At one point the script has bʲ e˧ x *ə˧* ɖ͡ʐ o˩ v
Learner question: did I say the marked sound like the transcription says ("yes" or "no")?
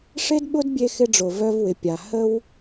no